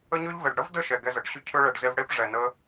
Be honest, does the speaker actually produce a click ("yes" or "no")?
no